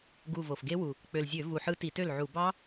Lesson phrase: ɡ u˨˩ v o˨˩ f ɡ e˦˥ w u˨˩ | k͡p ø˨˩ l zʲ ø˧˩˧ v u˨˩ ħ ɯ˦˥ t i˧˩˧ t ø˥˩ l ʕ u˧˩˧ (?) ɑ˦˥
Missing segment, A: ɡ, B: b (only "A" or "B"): B